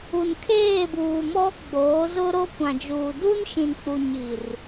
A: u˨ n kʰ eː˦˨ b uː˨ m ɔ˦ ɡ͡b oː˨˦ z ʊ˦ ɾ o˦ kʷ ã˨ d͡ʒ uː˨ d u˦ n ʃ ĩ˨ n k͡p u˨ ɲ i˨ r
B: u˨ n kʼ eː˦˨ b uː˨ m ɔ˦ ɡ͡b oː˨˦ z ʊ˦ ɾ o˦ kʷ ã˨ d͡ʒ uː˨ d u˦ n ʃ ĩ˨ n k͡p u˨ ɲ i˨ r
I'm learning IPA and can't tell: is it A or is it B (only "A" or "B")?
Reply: A